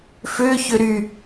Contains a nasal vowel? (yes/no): no